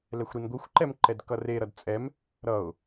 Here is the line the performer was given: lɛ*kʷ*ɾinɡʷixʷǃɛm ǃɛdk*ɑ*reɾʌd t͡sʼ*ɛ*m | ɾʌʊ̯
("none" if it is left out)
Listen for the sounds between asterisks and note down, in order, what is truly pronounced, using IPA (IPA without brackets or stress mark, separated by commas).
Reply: xʷ, ʌ, ɛ